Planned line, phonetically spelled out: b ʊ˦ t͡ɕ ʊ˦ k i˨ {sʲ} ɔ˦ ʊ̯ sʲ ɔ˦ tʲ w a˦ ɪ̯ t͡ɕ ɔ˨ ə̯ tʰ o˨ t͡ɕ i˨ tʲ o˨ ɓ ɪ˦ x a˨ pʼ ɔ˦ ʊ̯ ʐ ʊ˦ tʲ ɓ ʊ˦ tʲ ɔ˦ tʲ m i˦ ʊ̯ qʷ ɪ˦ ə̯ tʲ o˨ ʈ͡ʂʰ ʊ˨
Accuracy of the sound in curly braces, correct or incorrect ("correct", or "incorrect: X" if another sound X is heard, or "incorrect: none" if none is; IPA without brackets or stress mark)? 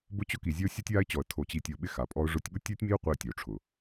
incorrect: zʲ